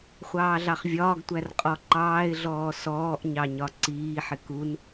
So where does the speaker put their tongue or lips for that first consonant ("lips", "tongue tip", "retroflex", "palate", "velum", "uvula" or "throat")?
uvula